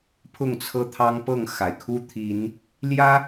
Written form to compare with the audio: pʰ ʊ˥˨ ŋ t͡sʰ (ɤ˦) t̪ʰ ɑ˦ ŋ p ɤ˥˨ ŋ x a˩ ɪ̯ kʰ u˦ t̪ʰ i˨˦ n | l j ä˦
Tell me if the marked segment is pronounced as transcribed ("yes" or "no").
yes